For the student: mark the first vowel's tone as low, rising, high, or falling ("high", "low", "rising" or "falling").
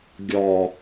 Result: low